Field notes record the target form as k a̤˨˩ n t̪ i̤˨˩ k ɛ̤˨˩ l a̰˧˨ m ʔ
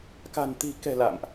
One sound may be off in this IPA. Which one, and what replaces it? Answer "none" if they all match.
none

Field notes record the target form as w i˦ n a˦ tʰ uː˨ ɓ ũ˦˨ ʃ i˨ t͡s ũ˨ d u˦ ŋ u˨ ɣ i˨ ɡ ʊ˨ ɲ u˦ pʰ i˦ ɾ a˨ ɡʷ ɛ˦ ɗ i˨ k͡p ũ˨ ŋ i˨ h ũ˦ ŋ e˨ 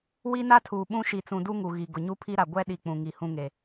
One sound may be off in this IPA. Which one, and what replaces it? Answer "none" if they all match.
none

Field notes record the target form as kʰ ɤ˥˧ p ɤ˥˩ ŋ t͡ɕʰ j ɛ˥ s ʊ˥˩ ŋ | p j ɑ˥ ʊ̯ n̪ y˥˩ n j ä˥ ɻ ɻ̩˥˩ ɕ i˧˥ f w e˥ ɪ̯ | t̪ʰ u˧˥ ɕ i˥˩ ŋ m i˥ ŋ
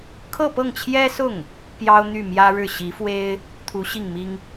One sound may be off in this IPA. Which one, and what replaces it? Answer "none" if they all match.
n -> m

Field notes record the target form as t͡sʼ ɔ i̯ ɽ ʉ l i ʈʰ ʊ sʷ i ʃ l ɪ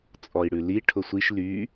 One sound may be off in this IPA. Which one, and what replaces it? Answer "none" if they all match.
ɪ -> y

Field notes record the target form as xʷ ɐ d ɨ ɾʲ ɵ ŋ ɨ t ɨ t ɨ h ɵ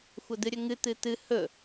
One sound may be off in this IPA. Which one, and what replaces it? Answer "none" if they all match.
none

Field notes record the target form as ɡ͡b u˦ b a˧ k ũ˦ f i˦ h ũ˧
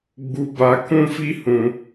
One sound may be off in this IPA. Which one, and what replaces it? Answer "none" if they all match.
a˧ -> a˦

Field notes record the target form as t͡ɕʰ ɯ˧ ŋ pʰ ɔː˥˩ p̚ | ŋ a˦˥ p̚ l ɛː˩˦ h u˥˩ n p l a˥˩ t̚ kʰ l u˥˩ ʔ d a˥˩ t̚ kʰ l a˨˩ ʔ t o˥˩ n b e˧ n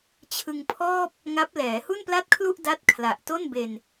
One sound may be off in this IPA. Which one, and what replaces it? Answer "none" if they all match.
none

